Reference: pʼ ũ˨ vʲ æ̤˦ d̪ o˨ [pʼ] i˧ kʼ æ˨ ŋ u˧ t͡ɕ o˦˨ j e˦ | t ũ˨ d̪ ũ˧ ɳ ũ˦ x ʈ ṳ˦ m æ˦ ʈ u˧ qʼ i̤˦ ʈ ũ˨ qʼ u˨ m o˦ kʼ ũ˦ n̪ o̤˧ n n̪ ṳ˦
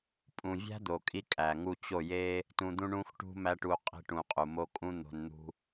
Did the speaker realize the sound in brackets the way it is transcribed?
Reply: no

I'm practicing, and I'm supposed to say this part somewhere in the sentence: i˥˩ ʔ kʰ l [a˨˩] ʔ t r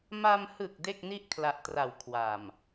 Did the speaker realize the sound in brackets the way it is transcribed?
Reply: yes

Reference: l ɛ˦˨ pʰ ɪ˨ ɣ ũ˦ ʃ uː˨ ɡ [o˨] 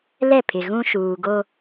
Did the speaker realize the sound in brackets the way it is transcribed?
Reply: no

